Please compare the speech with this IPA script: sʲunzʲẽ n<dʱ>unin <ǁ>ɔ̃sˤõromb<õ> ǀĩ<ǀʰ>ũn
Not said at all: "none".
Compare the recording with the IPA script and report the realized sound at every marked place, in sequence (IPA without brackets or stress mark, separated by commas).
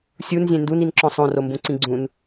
d, ǁ, ũ, ɡ͡ǀ